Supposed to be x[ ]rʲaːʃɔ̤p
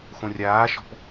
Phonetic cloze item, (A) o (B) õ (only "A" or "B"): B